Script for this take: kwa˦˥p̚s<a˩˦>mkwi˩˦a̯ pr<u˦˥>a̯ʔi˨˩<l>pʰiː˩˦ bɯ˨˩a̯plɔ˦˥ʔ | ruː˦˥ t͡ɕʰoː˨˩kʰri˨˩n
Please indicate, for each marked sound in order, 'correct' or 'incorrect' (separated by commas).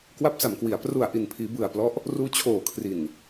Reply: correct, incorrect, incorrect